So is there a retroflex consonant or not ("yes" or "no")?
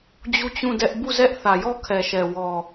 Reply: no